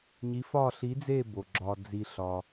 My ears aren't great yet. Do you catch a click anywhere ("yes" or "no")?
yes